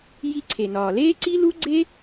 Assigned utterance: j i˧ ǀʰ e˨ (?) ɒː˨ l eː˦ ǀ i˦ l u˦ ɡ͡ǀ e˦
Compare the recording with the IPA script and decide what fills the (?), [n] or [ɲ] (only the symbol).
n